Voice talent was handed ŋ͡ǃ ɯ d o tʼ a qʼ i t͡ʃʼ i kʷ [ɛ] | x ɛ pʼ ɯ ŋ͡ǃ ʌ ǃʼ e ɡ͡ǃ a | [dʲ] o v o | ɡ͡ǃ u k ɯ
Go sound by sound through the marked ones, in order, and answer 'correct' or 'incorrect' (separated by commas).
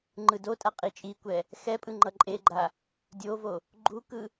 correct, correct